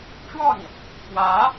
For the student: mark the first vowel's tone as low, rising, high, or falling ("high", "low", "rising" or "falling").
falling